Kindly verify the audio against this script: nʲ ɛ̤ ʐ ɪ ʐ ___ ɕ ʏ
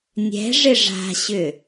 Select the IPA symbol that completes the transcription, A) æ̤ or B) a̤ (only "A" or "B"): B